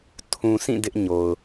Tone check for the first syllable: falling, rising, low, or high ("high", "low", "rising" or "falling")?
low